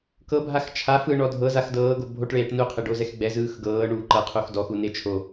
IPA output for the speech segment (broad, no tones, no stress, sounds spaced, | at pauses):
k ɤ bʱ a x t͡ʃʰ a f ɯ ɳ ɔ dʱ ɤ z a x d ɤː ɡ o bʱ o ʈ ɭ eː ʈ n u qʰ e ɖ o z ɛ x ɡ͡b ɛ z ɯː x ɡ ɤː ɳ uː ǃ ɤ qʰ u x d ɔ x u n e t͡ʃʰ o